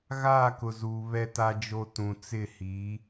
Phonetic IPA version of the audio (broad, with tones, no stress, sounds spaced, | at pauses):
ɣ aː˦˨ k ʊ˨ z uː˨ β ɛ˦ t a˦ d͡ʒ o˦ t ũ˨ t͡s ɪ˦˨ h i˨˦